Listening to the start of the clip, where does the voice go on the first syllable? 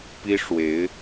high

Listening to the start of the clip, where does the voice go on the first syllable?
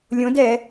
rising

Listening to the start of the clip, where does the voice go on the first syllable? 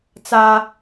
high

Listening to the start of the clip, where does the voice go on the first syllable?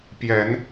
rising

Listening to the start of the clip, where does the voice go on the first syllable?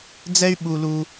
high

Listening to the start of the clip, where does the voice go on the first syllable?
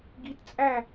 rising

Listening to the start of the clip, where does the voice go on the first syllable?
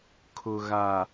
low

